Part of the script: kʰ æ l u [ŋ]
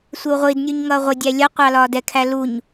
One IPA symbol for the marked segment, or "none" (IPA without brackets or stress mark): ɲ